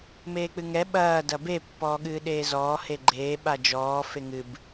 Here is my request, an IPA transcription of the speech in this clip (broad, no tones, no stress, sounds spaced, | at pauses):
m eː k͡p ɨ ŋ ɛ ɓ ɐː d ɐ b e pː ɔː ɠ ɨː ɗ eː z ɔː h e ɡ͡ǃ eː ɓ a d͡ʒ ɔː f e ŋ ɨ b